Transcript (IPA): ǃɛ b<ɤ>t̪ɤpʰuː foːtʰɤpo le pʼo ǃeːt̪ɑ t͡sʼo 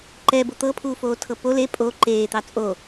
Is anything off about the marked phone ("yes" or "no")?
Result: yes